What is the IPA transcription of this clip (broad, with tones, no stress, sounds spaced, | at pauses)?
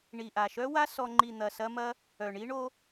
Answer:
ɳ i˨ ʔ a˨ ʃ œ˦ w a˦ s ɔ˧ ŋ͡ǃ i˨ n̪ ɐ˨ s ɐ˧ m ɐ˦ | œ˨ ɳ i˦ ɳ o˦